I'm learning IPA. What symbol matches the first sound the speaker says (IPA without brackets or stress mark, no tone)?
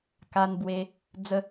k